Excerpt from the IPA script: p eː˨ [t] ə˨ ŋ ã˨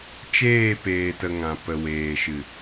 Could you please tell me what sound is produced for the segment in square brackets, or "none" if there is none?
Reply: t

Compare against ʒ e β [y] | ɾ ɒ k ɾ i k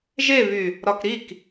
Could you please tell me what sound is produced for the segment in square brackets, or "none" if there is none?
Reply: y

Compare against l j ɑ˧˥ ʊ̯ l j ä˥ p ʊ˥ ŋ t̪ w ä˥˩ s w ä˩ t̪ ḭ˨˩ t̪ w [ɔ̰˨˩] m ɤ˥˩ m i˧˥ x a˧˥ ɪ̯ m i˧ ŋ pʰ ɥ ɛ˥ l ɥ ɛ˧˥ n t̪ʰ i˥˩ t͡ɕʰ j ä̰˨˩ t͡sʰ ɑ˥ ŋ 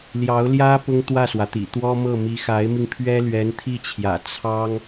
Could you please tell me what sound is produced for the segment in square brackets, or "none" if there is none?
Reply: ɔ˥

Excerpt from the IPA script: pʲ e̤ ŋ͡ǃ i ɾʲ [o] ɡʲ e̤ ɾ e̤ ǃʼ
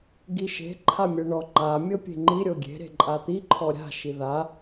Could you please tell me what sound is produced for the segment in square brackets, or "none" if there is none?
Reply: o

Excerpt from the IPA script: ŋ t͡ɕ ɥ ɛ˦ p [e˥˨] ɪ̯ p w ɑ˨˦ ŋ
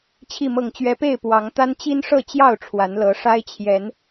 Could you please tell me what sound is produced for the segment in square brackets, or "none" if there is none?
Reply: e˥˨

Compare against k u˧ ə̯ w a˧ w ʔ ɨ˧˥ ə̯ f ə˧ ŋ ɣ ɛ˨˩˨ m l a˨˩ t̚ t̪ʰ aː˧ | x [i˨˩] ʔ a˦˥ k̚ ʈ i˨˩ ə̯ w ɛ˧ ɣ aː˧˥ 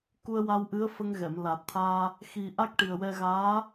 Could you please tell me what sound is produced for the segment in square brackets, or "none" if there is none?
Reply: i˨˩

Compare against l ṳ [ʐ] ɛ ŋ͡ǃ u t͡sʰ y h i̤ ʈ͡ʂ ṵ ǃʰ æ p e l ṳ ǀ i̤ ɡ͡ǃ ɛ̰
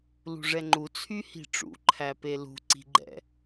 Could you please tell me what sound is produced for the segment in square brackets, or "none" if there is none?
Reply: ʐ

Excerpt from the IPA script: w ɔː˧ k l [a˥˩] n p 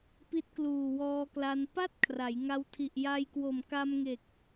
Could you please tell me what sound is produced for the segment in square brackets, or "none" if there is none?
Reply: a˧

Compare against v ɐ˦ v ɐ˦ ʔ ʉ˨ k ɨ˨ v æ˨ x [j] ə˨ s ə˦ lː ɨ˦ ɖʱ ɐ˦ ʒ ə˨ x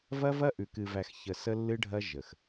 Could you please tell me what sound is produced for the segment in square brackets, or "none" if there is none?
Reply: ç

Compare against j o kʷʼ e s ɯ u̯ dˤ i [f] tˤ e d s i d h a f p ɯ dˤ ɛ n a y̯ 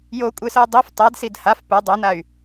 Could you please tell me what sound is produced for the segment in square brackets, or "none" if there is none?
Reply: f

